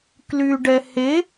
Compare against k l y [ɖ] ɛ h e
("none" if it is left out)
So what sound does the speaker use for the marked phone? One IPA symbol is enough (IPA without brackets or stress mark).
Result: ɖ